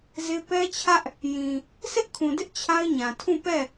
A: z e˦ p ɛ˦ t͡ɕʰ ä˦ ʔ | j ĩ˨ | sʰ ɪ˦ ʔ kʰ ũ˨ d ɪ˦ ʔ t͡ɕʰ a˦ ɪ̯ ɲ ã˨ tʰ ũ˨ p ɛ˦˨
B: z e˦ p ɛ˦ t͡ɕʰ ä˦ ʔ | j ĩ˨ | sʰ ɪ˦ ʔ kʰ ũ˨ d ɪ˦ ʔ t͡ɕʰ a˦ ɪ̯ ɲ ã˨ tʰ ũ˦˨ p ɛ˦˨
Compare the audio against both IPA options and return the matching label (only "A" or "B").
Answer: B